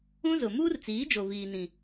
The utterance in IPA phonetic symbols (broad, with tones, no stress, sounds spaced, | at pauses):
ũ˦ z ʊ˨ m uː˦ r t͡s iː˨˦ d͡ʒ o˨ v iː˨ n ĩ˨